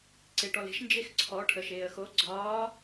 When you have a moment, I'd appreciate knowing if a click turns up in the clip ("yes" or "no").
yes